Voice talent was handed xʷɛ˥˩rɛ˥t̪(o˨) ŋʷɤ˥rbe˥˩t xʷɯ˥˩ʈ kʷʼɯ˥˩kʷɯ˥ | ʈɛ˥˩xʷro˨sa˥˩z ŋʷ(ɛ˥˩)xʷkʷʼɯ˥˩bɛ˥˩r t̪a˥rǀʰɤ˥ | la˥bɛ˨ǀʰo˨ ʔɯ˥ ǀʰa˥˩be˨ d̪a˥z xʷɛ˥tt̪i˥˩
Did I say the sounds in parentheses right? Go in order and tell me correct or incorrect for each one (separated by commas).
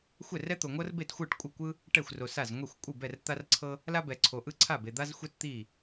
correct, correct